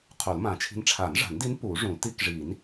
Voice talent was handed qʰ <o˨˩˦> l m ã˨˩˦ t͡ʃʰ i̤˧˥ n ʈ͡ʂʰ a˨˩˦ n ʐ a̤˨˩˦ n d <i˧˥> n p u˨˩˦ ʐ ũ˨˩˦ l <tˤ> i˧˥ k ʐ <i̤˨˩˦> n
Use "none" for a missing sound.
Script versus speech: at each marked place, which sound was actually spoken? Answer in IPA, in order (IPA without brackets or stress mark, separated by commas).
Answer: o˨˩˦, i˧˥, t, i˨˩˦